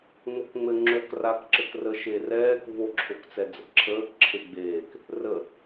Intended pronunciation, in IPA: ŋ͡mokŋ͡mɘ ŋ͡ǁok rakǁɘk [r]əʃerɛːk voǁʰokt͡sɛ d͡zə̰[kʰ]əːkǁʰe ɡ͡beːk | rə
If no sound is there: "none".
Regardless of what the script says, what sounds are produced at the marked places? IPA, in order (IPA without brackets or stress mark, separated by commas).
r, ǁʰ